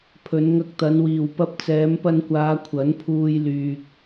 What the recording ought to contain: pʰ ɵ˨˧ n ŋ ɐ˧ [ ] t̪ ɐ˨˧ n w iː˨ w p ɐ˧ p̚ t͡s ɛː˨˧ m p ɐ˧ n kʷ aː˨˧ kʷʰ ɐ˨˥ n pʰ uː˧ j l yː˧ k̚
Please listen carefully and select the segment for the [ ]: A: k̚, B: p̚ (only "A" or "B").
A